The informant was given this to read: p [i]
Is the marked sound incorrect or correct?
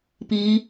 correct